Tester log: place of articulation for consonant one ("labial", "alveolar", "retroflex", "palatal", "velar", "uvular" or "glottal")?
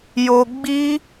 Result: palatal